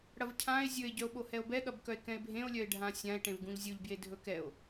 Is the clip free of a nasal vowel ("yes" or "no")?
no